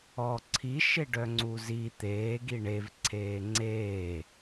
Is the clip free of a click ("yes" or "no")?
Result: no